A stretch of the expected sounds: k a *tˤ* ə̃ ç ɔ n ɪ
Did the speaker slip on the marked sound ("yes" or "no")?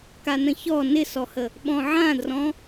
yes